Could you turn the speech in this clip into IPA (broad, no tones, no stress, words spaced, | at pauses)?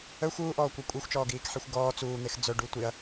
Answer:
œxʷ uːʔɔːkʷœ kʷʼixʷt͡ʃɔːɡiːkħexʷ ɡɔː t͡suːn̪ex d͡zœɖu tʷiɐ̯